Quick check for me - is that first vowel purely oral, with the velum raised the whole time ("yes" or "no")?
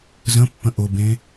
no